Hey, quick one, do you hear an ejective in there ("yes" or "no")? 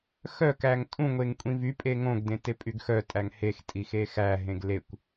yes